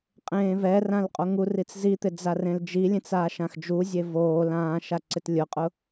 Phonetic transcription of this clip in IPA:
qʼ ẽː v ɛ r ã l qʼ o ŋ u r i t͡s z i t̪ ɪ d͡z a r ẽ l d͡ʒ i lʲ ẽ t͡s aː ʃ ã x d͡ʒ u zʲ e v oː l ãː ʃ a ǀ ɪ t lʲ ʊ qʼ ʊ

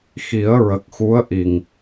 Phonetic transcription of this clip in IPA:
x i˨˩˦ ə̯ ɹ ə˨˩ k̚ x u˧˥ ə̯ ʔ i˨˩ ŋ

